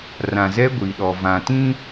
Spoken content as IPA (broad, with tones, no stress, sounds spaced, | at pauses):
r ã˨ z ɛ˦ ɡʷ i˨ ɗ ɔ˨ v ã˨ t ĩ˦